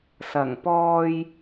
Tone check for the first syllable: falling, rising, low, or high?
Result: low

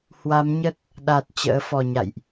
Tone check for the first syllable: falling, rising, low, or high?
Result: rising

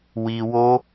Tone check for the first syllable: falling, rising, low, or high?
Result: low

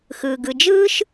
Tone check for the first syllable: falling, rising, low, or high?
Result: low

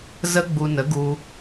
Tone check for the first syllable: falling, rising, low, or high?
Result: high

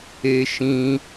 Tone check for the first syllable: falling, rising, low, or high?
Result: high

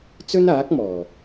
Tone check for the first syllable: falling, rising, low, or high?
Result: high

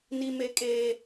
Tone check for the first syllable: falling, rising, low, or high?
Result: high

